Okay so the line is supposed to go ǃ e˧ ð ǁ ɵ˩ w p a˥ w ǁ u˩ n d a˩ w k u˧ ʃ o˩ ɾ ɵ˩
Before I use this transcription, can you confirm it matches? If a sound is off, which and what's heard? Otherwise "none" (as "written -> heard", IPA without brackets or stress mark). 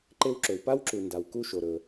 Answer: ð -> w